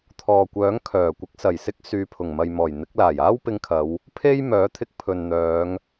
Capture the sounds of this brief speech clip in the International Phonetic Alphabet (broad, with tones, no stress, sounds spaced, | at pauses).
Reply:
t̪ʰ ɔː˨ kʷ œː˨˥ ŋ kʰ œː˨˩ kʷ ɪ˨˥ k̚ s ɐ˨˩ j s ɪ˥ k̚ s yː˨˧ pʰ ʊ˨˩ ŋ m ɐ˨ j m ɔː˨˩ j n̪ ɪ˨˥ k̚ l aː˨˩ j aː˥ w p ɪ˧ ŋ kʰ ɐ˨˧ w | pʰ e˥ j m œː˨˥ t̪ʰ ɪ˧ k̚ pʰ ɵ˨ n n̪ œː˨˧ ŋ